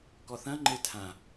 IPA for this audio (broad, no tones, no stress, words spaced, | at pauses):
kɔθɐ̃ ŋ͡ǃetʰã